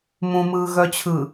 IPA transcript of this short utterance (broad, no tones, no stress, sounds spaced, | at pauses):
m ũ m ɯː ɣ œ t͡ɕʰ ɯ